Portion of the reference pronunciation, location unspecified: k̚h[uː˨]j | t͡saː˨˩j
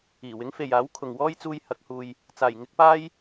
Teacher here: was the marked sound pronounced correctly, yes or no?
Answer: yes